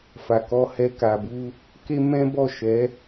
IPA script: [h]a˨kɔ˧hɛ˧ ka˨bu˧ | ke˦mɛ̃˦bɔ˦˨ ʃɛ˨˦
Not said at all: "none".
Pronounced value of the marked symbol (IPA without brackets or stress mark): f